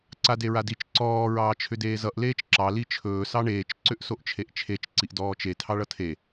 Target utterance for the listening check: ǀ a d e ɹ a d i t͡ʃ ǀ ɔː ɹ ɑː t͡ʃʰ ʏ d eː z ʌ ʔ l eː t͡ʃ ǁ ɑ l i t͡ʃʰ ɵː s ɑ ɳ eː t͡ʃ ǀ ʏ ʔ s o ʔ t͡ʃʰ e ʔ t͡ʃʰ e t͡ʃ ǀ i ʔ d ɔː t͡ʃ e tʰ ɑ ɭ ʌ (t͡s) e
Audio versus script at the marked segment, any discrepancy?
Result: yes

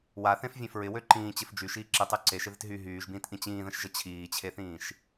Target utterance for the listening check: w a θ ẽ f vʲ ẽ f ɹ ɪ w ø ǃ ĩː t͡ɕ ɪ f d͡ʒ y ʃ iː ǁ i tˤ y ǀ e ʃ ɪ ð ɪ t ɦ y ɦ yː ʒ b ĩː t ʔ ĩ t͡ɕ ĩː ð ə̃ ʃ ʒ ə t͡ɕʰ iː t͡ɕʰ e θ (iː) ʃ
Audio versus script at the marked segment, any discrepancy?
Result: yes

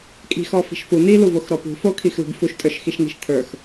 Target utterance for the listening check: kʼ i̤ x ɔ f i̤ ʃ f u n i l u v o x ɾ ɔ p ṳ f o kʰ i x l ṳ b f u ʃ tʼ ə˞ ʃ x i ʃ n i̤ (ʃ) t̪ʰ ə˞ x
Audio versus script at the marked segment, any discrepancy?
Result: no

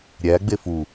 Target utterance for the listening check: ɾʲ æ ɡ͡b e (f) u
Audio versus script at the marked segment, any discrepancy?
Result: no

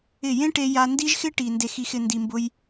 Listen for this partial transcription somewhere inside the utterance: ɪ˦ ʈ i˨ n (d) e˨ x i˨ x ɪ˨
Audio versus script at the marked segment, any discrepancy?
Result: no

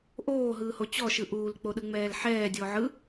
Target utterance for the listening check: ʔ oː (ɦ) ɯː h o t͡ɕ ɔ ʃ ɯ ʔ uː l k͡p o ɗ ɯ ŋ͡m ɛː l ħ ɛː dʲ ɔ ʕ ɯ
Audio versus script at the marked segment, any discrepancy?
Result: no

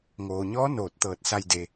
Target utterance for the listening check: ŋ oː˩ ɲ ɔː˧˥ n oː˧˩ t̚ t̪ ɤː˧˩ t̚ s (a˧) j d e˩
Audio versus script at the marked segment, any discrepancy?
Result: no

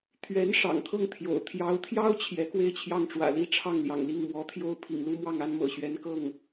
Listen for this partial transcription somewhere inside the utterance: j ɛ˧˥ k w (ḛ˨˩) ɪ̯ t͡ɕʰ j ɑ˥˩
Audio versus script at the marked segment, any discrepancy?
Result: yes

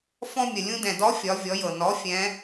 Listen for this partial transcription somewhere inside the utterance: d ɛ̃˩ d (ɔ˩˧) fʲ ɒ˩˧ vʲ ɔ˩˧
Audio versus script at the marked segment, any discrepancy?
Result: yes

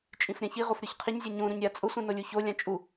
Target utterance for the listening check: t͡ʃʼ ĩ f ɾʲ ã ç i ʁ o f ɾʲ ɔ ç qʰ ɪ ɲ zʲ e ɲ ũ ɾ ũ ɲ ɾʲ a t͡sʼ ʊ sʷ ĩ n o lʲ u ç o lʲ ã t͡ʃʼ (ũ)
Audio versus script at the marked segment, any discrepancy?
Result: yes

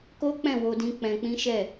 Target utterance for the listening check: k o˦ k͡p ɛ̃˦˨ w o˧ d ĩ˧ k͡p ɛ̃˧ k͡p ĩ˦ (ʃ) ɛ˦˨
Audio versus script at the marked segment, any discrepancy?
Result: no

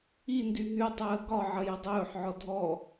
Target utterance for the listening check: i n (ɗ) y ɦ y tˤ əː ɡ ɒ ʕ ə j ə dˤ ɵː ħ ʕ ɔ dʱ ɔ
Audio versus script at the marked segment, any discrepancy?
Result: yes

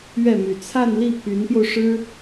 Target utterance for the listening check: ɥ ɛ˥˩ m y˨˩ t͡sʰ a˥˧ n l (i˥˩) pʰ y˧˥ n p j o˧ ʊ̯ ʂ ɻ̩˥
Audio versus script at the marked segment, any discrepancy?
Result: no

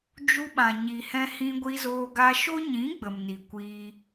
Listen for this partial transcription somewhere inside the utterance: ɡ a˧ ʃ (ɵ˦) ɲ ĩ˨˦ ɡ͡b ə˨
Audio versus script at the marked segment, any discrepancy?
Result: yes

